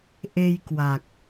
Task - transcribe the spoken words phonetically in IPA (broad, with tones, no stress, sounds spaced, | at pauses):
ʔ e˧ j k w a˨˩ k̚